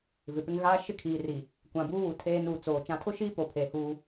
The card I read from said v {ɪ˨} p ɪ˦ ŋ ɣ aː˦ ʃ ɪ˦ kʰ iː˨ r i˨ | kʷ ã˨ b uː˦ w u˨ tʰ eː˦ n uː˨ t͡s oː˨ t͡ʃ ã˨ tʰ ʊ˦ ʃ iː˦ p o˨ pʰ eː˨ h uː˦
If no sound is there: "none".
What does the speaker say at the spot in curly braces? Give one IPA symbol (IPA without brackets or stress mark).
ɪ˨